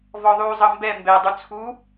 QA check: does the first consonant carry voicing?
yes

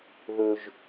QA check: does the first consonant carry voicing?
yes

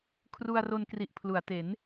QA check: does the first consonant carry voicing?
no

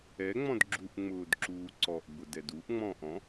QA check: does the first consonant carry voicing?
yes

